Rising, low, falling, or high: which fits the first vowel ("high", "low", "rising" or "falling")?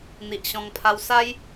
low